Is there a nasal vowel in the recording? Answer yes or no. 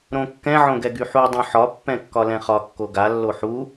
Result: yes